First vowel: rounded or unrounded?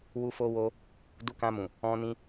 rounded